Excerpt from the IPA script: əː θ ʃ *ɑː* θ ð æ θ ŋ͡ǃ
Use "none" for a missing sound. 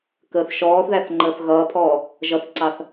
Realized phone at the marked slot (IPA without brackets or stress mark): ɔː